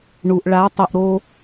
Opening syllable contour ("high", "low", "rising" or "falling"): low